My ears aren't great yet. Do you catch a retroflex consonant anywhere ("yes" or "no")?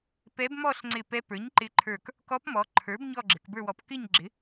no